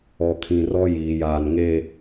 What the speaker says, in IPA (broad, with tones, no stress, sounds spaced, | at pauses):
ɔ˨ kʰ ĩ˨ r ɔ˦ j iː˨ j aː˨ n ŋ e˦˨